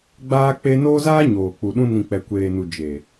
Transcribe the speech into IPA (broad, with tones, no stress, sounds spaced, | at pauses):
ɡ͡b aː˧ k͡p e˧ n oː˦ z aː˦ ɲ oː˨ k͡p u˨ ɗ ũ˧ n ĩ˨ k͡p ɛ˨ kʷ eː˨ n u˨ d͡ʒ e˨